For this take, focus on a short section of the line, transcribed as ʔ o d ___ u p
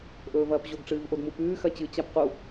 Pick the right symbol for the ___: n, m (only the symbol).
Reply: m